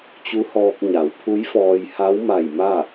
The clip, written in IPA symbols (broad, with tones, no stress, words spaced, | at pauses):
t͡ɕu˧˥hɔː˧k̚ ɲa˩˧wpʰu˧˥jfɔː˧j ha˧˥wma˧˩j ma˥˨